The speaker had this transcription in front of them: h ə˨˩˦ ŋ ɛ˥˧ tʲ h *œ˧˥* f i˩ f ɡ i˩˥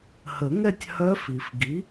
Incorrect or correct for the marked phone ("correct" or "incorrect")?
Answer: correct